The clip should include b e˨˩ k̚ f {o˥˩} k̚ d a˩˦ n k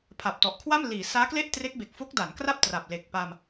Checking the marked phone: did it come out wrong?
yes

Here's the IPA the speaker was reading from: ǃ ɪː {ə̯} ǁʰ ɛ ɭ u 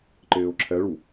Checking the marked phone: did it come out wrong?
yes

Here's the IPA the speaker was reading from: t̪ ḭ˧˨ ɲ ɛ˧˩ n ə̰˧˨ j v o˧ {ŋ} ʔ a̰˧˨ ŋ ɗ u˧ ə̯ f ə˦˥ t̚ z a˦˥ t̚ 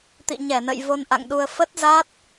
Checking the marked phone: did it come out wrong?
yes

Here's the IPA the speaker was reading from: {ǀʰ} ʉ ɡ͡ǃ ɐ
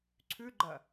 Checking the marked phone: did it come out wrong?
no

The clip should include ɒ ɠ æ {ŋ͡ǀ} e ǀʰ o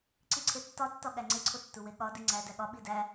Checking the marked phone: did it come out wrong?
no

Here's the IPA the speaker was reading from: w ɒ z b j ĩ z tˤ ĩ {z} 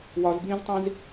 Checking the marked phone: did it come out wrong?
no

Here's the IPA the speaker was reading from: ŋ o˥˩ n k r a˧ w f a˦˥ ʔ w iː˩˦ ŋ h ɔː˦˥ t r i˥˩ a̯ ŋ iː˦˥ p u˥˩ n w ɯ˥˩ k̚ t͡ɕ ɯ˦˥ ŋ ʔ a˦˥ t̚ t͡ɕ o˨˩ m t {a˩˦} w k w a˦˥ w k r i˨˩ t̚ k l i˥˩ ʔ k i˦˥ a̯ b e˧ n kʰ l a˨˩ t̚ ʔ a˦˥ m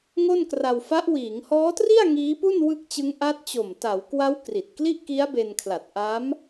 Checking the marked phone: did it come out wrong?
no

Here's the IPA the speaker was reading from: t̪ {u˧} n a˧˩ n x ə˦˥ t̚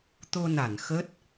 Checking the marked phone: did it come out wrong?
yes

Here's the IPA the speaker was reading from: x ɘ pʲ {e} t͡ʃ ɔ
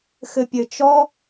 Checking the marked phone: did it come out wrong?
yes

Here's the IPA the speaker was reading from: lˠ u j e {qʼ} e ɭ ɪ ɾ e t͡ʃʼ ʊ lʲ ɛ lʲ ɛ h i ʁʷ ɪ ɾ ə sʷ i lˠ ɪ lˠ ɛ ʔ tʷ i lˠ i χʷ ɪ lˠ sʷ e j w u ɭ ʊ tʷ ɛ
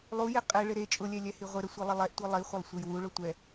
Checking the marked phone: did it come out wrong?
no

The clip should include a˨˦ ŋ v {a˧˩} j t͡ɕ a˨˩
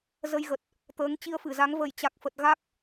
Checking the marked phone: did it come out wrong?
yes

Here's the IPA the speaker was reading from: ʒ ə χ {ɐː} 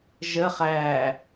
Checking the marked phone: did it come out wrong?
yes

